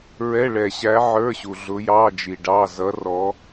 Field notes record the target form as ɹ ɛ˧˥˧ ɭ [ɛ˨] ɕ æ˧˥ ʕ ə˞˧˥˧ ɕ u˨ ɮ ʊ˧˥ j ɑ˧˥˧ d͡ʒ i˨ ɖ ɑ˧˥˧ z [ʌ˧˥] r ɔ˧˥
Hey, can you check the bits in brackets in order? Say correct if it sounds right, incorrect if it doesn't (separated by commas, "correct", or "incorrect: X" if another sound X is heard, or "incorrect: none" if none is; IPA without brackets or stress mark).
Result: correct, correct